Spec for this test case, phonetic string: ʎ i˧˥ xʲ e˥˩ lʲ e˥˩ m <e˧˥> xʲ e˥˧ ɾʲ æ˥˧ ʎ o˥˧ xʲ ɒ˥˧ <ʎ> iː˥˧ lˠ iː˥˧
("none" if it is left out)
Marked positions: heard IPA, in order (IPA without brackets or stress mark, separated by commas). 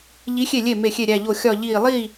e˥˩, ʎ